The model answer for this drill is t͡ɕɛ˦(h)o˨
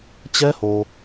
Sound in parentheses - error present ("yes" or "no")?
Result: no